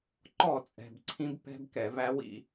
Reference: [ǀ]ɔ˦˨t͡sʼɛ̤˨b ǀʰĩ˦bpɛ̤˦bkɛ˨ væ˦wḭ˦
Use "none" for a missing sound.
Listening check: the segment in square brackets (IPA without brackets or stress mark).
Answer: ǃ